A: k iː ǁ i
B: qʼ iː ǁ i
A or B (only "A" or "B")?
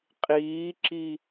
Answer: B